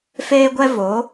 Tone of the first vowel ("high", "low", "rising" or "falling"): high